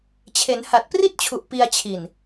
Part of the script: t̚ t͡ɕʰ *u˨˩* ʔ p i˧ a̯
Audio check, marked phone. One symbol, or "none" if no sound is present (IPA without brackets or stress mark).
u˨˩